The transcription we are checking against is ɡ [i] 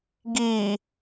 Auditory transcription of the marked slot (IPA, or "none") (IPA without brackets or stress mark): i